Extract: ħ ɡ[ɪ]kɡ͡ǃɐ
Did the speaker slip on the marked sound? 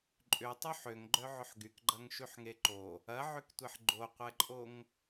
yes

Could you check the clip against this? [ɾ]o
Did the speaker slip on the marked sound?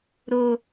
no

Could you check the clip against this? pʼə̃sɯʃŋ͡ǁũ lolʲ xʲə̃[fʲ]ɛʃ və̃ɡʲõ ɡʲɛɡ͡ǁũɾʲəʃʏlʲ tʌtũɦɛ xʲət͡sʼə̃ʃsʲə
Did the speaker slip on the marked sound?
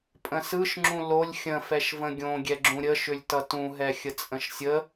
yes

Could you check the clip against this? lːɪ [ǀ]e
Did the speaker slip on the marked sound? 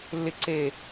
no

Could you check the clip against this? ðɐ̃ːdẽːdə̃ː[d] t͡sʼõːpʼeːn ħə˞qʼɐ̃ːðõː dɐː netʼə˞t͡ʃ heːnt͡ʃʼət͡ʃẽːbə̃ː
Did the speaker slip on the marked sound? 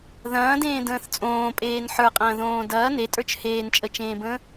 yes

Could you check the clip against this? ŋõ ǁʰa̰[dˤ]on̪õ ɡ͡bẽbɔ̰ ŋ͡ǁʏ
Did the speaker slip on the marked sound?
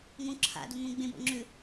yes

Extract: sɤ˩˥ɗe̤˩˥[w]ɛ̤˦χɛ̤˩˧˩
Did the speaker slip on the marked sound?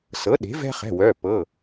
yes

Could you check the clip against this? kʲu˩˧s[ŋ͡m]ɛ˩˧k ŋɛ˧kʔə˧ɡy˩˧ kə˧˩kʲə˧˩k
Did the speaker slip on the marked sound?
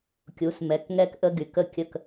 yes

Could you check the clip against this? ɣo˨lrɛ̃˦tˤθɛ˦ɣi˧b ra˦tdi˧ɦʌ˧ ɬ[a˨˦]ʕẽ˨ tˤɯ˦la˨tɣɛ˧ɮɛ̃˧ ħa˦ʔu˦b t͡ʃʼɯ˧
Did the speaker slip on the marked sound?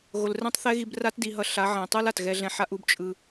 no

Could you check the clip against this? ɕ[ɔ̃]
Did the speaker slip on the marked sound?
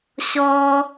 yes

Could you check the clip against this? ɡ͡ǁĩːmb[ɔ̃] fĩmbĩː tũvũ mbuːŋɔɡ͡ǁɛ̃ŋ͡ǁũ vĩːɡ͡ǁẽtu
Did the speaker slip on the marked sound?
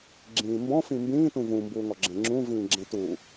no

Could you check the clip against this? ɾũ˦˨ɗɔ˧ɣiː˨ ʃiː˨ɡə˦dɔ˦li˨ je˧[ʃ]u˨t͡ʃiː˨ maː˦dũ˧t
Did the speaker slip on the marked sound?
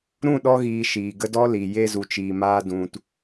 yes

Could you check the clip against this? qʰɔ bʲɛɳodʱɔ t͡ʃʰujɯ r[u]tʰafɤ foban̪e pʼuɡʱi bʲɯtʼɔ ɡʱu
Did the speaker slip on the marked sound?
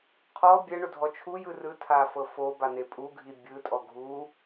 yes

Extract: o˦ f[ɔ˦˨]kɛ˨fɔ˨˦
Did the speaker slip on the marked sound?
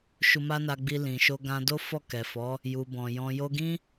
no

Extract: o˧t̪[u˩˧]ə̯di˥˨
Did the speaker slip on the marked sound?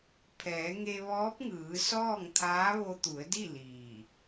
no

